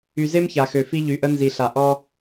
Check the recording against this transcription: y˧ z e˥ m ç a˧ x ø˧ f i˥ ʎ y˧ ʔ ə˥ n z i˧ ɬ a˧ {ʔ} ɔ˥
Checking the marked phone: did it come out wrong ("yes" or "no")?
no